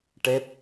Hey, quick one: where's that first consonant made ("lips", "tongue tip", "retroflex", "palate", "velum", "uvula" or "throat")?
retroflex